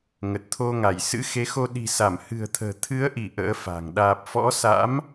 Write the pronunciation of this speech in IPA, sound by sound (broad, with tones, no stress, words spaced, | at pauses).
ŋə˨˩t̚t̪ʰo˧ŋa˧˩j sɨ̰˧˥xe˨˦xo˧ ɗi̤˨˩sa˧˩m hɨ̤˨˩ə̯t̪ʰə̤ː˨˩ t̪ʰɨ˨˦ə̯ʔi˧˩ ʔə̰ː˧˥fa̤˨˩ŋ ɗaː˨˩p̚fɔ̰˧˥sa̰˧˥m